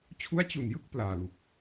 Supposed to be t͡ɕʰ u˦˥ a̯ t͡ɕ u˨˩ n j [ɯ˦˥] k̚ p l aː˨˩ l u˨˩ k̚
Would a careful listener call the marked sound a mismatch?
yes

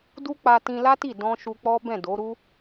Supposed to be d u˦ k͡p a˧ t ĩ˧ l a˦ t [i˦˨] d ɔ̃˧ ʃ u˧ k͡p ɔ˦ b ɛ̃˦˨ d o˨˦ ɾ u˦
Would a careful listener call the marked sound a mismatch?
no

